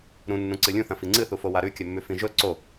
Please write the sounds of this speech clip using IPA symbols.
ɾũnːũ ǀɨlʲũθɐ̃ fiŋ͡ǀɨθufo waɾʉkʲɵmːʉ fĩʒɵ ǀo

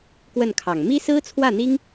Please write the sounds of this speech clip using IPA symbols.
kwə˥˩nkʰɑ˨˩ŋ mi˥sɹ̩˥t͡sʰwä˥˩n̪i˥ŋ

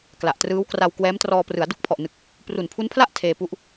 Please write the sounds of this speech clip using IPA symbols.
kla˨˩ʔtrɯː˦˥wkra˧w kwɛː˦˥mtrɔː˧ prɯ˩˦a̯du˥˩k̚pʰɔ˨˩ʔnɯ˨˩k̚ | pru˨˩npʰu˦˥npʰla˥˩ʔ tʰeː˧pu˦˥ʔ

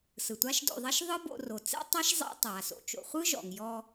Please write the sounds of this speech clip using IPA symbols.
sɯ˩tʷa˥ʃdo̰˧ðˤɛ˥ʃ ðˤɯ˥bo̰˧ ro˩t͡sɛ̰˥tˤa˥ʃ zˤḛ˥ tˤa˩so̰˧ t͡ʃo̰˩χʷɯ˥ ʒɔ̰˩ŋjɔ˧

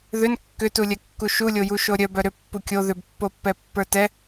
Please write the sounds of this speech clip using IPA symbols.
ðʏn kːʏtulʲɛkːu ʃulʲojuʃo ɾʲœbœ ɾʏpːu kʲo ðʏbpːopːɛpːə˞ tɛ

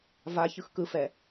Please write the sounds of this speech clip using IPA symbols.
va çɯxkɯfɛ

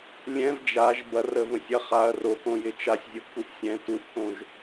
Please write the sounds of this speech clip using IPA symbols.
lʲɛ̃v d͡ʒaʒ bɐrəvə̃sʲɐ χaɐ̯ rokõjɪ t͡ʃasʲzʲoʔkuʔ sʲɛ̃ tuʔkõʒ

